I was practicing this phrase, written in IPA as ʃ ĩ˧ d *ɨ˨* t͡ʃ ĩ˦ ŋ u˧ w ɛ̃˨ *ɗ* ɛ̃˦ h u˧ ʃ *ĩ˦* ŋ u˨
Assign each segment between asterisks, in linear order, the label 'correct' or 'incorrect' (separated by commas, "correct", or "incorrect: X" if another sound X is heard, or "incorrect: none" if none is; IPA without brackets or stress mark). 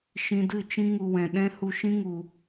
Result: incorrect: ɨ˦˨, correct, correct